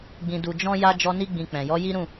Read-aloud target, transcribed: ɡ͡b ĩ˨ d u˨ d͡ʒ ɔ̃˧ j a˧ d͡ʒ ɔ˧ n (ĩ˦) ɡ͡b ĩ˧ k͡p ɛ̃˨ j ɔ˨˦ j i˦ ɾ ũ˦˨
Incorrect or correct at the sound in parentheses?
incorrect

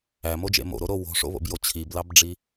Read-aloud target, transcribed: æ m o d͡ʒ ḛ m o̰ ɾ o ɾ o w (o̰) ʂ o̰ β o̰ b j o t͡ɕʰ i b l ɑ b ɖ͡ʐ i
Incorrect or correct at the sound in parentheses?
incorrect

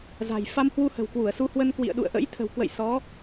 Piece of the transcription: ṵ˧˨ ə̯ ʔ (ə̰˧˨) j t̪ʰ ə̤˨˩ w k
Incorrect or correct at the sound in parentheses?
incorrect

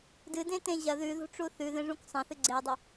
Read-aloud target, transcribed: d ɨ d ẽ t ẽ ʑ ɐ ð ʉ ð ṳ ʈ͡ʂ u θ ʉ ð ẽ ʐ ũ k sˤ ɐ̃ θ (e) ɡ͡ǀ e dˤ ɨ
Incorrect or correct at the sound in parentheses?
incorrect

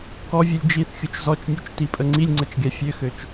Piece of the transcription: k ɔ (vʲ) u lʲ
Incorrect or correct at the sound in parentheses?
correct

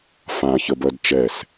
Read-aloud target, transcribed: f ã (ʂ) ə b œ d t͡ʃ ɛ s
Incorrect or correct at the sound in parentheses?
incorrect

